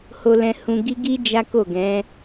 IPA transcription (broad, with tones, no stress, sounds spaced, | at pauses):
h o˧ l ɛ̃˧ h ũ˧ ɡ i˦ ɡ i˦ d͡ʒ a˦ k o˦˨ ɡ ɛ̃˨˦